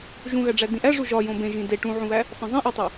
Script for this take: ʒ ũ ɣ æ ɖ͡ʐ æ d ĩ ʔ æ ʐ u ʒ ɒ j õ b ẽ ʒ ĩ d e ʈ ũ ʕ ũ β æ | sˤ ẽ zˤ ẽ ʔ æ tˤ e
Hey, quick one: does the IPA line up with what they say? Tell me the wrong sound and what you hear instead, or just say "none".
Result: none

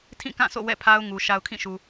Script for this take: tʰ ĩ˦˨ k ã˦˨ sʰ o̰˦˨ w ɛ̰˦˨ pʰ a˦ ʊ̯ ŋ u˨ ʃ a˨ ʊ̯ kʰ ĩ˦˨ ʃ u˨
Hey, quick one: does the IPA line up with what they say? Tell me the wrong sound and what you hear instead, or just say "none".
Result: none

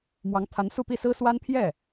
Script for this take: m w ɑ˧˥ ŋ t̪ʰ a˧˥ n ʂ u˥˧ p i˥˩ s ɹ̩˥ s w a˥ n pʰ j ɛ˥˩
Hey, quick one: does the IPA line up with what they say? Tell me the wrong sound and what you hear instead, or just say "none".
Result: ʂ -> s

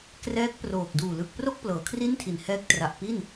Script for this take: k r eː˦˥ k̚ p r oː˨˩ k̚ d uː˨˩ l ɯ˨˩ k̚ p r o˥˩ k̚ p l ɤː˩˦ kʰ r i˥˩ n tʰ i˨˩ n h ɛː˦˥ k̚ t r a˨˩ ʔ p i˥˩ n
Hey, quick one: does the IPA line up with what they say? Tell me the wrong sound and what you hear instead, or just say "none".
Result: eː˦˥ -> ɛː˦˥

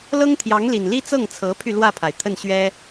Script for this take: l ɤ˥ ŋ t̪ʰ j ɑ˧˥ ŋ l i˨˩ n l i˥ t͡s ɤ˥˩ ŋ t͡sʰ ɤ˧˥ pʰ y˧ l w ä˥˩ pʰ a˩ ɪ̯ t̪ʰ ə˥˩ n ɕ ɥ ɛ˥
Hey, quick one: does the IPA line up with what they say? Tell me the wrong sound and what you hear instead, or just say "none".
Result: none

